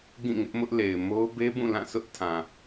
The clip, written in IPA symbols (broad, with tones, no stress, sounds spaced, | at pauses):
ɡ ĩ˦˨ ŋ ɪ˦ ʔ m ʊ˦ ʔ l e˨ ɪ̯ m o˦ ʊ̯ b e˦ b ũ˦˨ l ã˦˨ sʰ ʊ˦ ʔ tʰ ã˨